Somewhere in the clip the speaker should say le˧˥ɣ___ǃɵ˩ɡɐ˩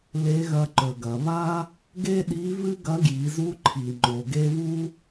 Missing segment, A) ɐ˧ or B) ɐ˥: A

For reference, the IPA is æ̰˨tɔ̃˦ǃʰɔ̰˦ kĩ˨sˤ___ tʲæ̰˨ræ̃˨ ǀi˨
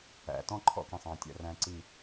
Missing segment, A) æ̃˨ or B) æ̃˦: A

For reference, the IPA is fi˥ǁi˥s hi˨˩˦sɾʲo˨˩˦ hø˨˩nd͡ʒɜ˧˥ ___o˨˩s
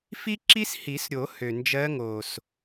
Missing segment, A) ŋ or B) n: A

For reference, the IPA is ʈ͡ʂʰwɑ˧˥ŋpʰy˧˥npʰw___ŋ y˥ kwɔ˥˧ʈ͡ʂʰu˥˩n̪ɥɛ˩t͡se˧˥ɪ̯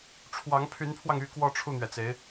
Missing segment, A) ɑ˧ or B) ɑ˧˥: A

